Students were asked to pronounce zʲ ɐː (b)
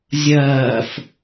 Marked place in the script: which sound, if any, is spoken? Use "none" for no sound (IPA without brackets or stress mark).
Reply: f